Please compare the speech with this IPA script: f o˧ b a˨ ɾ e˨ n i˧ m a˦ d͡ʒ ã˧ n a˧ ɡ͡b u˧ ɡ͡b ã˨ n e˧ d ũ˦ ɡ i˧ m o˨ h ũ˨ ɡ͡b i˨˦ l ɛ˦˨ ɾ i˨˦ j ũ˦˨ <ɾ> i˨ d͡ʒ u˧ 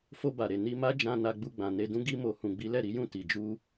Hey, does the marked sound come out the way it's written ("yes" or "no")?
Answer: no